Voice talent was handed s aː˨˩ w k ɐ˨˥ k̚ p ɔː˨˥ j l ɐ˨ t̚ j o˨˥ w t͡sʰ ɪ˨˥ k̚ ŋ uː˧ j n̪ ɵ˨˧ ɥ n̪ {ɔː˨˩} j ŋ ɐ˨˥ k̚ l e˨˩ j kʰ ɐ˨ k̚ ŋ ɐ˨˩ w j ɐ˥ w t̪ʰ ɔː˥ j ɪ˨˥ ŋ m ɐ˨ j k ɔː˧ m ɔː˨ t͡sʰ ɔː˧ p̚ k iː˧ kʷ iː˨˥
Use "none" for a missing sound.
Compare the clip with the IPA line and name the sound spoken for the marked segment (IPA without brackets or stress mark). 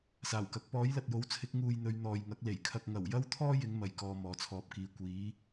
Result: ɔː˨